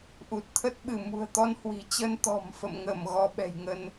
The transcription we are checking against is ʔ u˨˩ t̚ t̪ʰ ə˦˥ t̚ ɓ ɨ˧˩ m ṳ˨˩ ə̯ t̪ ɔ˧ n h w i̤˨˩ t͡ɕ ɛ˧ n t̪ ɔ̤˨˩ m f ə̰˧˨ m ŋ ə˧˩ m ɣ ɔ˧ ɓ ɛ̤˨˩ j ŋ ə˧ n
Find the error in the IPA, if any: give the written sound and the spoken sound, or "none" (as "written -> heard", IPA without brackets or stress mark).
ɛ˧ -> ə˧